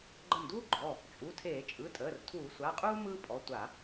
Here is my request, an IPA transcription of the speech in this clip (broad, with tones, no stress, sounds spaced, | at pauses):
ɡ͡ǃ ə˧˩ m d uː˥ ɡ͡ǃ ɔ˩˧˩ | t͡ʃʼ u˩˧˩ tʰ eː˧˩˧ t͡ʃʼ ɯ˩˧˩ tʼ əː˩˧˩ r tʰ uː˧˩˧ sʷ a˩˧˩ qʼ uː˥ m ɯː˥ pʼ ɔ˩˧˩ tʷ a˧˩˧